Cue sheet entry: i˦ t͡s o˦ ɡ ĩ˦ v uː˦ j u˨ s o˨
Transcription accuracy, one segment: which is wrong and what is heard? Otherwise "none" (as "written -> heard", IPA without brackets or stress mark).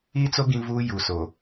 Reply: none